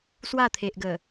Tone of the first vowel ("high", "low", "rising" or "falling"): falling